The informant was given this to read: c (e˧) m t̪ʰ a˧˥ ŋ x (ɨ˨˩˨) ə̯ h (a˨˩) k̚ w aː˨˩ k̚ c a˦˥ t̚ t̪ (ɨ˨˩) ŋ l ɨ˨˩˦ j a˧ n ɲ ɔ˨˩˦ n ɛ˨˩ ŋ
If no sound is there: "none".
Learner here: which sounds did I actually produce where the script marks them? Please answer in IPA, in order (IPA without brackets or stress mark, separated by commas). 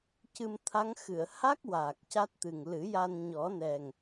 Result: ɨ˧, ɨ˨˩˨, a˦˥, ɨ˨˩